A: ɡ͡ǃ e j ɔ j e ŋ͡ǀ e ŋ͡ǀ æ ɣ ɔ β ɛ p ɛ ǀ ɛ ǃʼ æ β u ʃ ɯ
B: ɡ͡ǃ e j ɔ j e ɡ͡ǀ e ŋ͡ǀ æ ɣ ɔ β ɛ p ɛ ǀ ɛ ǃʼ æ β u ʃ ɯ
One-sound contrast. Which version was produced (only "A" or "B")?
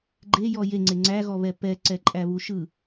A